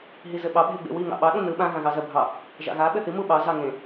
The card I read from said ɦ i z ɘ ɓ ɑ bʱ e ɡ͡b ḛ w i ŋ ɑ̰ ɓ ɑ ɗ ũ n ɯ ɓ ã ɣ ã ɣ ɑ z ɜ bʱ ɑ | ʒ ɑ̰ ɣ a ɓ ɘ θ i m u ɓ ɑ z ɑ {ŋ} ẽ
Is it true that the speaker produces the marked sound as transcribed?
yes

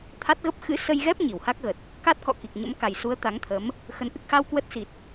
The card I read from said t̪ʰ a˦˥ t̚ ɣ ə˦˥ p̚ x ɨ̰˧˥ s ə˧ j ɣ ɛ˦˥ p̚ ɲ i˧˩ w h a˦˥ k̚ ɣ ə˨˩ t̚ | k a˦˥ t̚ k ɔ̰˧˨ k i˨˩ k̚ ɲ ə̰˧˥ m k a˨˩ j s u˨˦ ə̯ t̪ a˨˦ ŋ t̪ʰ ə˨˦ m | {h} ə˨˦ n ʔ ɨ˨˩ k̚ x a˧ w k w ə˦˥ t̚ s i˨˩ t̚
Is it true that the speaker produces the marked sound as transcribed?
no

